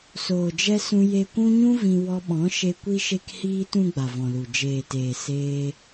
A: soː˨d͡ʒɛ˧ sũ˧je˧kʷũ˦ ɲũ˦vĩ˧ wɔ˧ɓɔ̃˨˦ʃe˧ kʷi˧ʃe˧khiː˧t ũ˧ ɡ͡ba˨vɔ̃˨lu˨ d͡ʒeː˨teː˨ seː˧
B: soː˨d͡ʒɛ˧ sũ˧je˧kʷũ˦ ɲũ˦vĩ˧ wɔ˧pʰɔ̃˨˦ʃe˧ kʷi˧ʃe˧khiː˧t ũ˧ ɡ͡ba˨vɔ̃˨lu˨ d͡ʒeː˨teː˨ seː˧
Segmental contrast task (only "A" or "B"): A